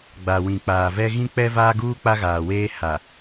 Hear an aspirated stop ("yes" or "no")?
no